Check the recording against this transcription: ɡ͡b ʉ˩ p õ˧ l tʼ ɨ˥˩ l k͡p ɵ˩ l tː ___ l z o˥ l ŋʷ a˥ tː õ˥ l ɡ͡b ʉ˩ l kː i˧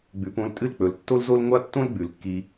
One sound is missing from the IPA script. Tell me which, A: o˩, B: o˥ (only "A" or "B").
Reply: B